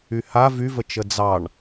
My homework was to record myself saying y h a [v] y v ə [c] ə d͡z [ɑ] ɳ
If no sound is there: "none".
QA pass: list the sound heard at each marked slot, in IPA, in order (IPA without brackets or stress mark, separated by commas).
v, t͡ʃ, ɑ